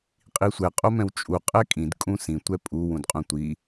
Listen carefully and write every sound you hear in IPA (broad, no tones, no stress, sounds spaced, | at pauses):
qʼ i sʷ ɛ qʼ o m ɛ̃ w t͡ʃʼ u qʼ ɛ kʼ ĩ d kʼ ũ s ĩ tʷ ɛ pʼ u w ũ d qʼ ũ tʷ i